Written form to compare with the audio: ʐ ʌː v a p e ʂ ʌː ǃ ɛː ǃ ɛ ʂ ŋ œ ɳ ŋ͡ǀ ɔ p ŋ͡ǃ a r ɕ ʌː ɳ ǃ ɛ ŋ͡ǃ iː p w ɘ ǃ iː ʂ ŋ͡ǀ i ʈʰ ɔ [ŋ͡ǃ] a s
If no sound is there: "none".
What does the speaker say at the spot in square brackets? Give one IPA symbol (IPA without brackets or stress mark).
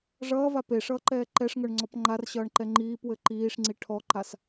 ǃ